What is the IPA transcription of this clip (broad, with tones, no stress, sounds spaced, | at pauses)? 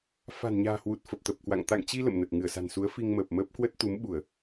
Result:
f a̤˨˩ n ɲ a̤ː˨˩ h w u˨˩ t̚ f ə˨˩ p̚ t̪ ə˨˩ p̚ k w a̰˧˨ ŋ t̪ a̰˧˨ ŋ t͡ɕ i˧ l ə̰˧˨ m n ə˨˩ t̚ ŋ ɨ˧˩ ə̯ s a̤˨˩ n s u˨˦ ə̯ f i˧ ŋ m əː˨˩ p̚ m əː˦˥ p̚ k w ə˦˥ t̚ t̪ u˨˦ m ɓ u˧˩˨ ə̯